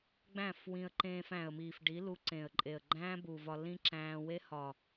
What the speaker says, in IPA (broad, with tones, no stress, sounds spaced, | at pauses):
ɡ͡b æ̃˦˨ f w ĩ˧ ə̯ ǃ ẽː˧ f æ̃˨ ə̯ m iː˨ f ɖ i˨˦ l u˧ ǀ ẽ˨ ə̯ ǃʼ e˨ ə̯ ɡ͡ǃ æ̃ː˦ b u˨ v ɒ˧ l ĩ˦ ǁ æ̃ː˧ w e˦ h ɒ˨